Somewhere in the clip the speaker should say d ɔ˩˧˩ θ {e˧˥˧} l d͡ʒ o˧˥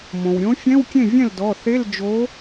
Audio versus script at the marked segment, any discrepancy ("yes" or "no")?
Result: no